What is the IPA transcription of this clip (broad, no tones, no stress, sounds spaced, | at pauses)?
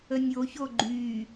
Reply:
ə nʲ o ç o ɡ͡ǃ y